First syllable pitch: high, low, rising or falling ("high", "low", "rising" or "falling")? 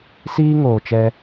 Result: high